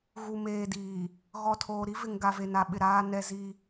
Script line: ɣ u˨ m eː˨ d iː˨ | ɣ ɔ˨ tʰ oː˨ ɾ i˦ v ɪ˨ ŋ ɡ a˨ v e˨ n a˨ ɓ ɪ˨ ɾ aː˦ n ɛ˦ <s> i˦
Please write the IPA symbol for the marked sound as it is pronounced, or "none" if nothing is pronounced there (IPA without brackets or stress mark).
z